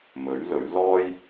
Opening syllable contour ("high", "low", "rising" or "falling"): rising